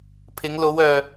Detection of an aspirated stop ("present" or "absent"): present